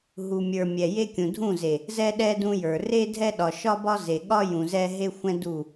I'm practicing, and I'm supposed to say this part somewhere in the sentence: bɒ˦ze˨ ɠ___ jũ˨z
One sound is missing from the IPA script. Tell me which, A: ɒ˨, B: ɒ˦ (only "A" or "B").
B